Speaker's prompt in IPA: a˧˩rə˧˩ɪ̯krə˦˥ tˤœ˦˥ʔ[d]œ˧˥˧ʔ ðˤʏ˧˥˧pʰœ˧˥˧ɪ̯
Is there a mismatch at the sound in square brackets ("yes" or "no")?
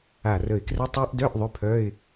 no